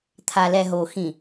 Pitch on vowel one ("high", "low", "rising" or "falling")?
low